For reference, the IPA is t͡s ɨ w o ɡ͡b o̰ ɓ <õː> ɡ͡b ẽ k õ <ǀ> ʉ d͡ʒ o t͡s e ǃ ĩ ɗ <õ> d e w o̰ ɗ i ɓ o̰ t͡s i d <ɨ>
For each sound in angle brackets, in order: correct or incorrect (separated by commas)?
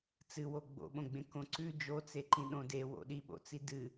incorrect, correct, correct, correct